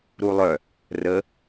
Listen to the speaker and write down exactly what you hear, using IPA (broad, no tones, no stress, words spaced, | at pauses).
ɾulˠœ | rə